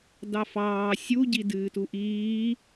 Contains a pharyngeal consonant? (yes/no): no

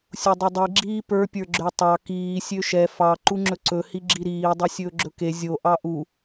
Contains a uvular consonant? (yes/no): no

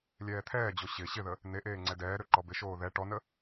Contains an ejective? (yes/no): no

